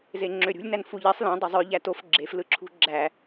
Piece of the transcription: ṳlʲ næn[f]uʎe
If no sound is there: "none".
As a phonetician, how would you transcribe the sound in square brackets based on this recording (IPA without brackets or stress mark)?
f